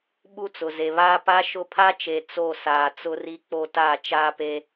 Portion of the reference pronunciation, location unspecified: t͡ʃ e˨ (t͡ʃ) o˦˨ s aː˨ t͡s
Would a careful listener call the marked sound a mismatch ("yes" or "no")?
yes